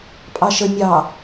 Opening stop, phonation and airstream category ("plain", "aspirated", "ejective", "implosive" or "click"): ejective